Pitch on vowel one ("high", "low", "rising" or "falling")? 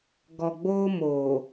low